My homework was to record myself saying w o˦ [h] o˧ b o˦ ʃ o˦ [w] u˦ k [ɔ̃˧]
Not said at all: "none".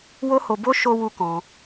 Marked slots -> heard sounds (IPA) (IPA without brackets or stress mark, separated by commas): h, w, ɔ̃˧